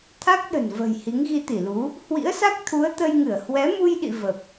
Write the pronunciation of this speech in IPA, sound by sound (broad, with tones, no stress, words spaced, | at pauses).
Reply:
t̪ʰa˦˥k̚ɗə̤˨˩n və̤˨˩j hi˨˦ŋɣi˧t̪i˧˩lu˨˦ | hwḭ˧˥ə̯sa˦˥k̚t̪ʰu˨˦ə̯ t̪ə˧jŋɨ˧˩ə̯ hwɛ˨˦mu˧jɗḭ˧˨ və˨˩p̚